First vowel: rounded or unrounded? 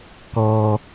rounded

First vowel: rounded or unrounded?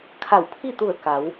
unrounded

